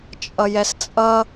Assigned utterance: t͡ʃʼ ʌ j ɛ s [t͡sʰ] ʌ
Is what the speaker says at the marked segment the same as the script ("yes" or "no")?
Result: no